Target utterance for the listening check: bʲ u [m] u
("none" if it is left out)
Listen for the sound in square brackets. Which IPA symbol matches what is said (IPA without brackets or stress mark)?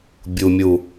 mʲ